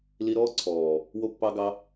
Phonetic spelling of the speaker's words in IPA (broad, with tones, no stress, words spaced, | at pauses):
li˧ɾɔː˦ǀʰɔː˨ | wo˧pːɑ˧ɡɑ˧